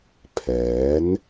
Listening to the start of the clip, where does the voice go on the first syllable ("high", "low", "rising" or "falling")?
rising